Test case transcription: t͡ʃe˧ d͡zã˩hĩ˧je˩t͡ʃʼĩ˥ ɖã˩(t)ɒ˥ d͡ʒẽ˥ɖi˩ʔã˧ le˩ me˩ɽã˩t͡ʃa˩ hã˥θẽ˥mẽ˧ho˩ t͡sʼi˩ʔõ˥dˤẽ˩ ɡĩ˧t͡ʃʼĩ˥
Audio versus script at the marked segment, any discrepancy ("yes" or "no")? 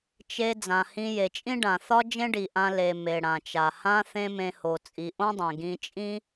yes